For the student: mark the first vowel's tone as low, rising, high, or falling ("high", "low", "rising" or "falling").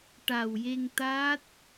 low